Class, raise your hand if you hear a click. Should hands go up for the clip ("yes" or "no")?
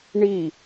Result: no